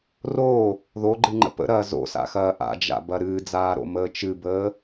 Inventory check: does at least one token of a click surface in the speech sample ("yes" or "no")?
yes